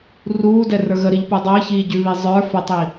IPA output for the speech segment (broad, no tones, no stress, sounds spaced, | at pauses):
r uː d ɛ r ə˞ ɣ ə ɾ i ʎ p u dˤ əː ç iː ɟ ʉ β i zˤ ə˞ f ə tˤ i